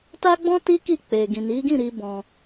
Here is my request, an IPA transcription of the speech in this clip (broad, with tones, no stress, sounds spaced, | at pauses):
t a˦ ɡ͡b ɔ̃˦ t i˦ k i˦˨ k͡p e˨ ɡ ĩ˨ n i˨˦ ɡ ĩ˦˨ ɾ i˧ b ɔ̃˧